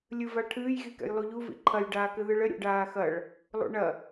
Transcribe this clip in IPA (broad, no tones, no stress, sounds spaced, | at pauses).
lʲ ɨ v a ʈʰ ɨː j ɣ i k ɛ̰ j lˠ u ʎ u v ḭ ǃʰ ɐ j ɖ aː k ɘ ð ɨ ɭ ɘ ɾʲ ṵ ɖ aː x ɐ ɭ | lˠ ṵ ɳ ɐ